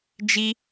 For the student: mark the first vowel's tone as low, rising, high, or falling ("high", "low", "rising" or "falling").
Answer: high